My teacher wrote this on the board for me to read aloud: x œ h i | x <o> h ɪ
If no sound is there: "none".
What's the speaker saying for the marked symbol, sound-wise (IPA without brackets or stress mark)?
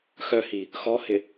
ɔ